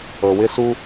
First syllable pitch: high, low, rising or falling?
low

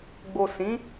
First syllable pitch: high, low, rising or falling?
low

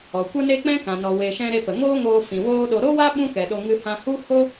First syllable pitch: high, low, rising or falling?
low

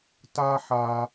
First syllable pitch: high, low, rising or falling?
high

